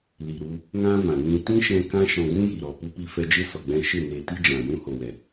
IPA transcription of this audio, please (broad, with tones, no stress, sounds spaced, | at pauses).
l i˨ ɾ u˧ | ŋ ã˦ v ã˨ n ĩ˧ t ĩ˦ ʃ ɛ̃˧ k ã˦ ʃ ɔ̃˧ ɡ ũ˦ j i˨ ɾ ɔ˨ p u˦ p i˦ f ɛ˦ d͡ʒ e˦ s ɔ˨ ɡ͡b ɛ̃˧ ʃ e˦˨ n e˨ t i˧ d͡ʒ ã˨ j ũ˦ h o˨ w ɛ˨